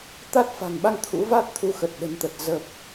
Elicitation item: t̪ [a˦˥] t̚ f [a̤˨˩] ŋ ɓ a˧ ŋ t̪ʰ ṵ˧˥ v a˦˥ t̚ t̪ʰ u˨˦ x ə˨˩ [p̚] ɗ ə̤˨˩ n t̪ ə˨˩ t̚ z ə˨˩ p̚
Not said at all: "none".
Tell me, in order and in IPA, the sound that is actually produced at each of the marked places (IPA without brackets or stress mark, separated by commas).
a˦˥, a̤˨˩, t̚